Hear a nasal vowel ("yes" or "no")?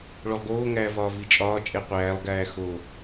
no